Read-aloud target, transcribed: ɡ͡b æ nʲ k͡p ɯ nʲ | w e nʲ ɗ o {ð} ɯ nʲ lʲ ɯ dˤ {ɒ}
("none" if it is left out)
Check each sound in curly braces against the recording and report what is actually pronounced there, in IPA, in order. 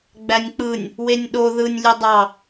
ð, ɑ

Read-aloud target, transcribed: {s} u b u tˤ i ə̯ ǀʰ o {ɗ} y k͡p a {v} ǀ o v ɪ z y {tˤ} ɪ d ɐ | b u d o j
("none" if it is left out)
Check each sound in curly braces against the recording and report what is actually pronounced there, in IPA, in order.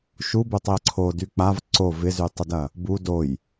ʃ, d, v, tˤ

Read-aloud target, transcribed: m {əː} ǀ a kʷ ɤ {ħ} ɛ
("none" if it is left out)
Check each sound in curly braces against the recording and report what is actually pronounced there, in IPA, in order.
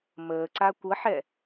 əː, ħ

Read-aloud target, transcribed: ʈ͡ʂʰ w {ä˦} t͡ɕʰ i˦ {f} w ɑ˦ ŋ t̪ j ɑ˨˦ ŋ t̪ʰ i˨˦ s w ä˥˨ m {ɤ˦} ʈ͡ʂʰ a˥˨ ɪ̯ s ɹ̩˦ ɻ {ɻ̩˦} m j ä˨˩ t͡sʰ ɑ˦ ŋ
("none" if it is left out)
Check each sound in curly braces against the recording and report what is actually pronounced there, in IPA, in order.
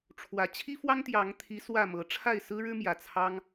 ä˨˦, f, ɤ˨˦, ɻ̩˦

